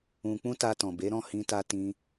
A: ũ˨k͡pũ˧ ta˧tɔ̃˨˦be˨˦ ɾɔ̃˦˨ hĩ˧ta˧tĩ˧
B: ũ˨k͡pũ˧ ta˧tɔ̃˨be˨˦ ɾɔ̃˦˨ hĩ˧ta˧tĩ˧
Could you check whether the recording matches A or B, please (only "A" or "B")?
B